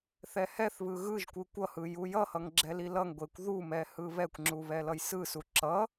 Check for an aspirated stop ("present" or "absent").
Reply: absent